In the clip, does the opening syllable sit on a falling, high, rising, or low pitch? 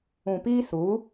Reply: low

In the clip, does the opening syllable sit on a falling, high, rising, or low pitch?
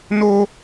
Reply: high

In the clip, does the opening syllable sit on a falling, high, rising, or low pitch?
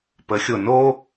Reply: rising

